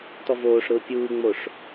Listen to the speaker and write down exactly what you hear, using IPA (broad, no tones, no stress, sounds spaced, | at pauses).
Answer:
t ɔ v oː ʂ ɾ ʊː pʲ uː ŋ͡m o ʂ